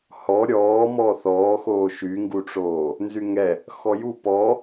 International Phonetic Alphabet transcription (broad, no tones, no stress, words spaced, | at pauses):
hɔ ɾʲɔː mɔːθɔːxoː ʃyŋɡuʈ͡ʂoː | nzyŋɛ | xɔju pɔ